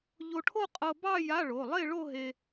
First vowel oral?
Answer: yes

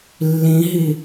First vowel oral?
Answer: no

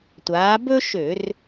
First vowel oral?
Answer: yes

